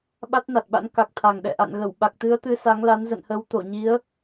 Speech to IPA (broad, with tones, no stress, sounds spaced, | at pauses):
ɓ a˦˥ t̚ n a˨˩ t̚ ɓ a̰˧˥ n k a˨˩ k̚ t̪ʰ a˨˩ ŋ ɗ ɛ̰˧˨ ʔ a̰˧˨ n ɣ ə˧˩ w ɓ a˨˩ k̚ t̪ ɨ˨˦ ə̯ t̪ ɨ˨˦ s a˨˦ ŋ l a˨˦ n z ə̰˧˨ n h ə˨˦ w t̪ o˧˩ ɲ i˨˦ ə̯